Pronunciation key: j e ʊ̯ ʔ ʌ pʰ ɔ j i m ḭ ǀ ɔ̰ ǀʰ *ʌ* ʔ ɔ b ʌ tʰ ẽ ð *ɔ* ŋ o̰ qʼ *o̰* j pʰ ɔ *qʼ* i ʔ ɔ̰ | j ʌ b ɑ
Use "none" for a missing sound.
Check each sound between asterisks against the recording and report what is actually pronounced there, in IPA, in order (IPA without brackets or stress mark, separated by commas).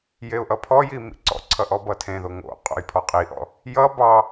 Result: ʌ, o, o̰, qʼ